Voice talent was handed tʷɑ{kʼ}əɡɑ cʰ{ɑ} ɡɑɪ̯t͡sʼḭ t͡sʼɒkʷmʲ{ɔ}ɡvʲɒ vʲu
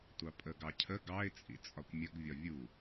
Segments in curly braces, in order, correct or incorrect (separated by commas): incorrect, incorrect, incorrect